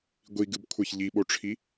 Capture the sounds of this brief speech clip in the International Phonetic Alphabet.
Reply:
ɡʷiɡɨbkʷʰɛç ʎiɓoʈ͡ʂʰi

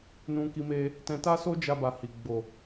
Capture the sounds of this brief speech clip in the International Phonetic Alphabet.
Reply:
nũ˦ki˦me˦ | tɛ̃˧ta˦so˦d͡ʒa˧ ba˧hi˨ ɡ͡bo˨

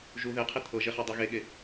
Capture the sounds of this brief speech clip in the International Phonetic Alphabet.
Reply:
ʒu ðeqʰi t̪ʰɤʒeχa dˤeɣeɠe

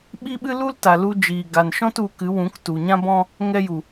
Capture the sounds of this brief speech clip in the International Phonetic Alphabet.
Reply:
ɓi˦ɓɨ˦lu˦lta˨ lu˧d͡ʒiː˨ ɡa˨nʃɔ̃˦t u˨˦kɨ˨˦wũ˨˦k tu˨ɲã˦bɔ̃˦ | ŋɛ˧ju˨

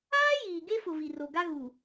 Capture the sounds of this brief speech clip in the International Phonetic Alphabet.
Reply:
aː˦ jiː˨ɡe˦fʊ˨ vi˨ro˨ɡa˦ ɣu˨

